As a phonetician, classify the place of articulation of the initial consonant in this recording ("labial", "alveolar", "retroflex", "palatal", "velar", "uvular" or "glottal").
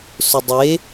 alveolar